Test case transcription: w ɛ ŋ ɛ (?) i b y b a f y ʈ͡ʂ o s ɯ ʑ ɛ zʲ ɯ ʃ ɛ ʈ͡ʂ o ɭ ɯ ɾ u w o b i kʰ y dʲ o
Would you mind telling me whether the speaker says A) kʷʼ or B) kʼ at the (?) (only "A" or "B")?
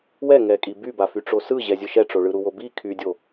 B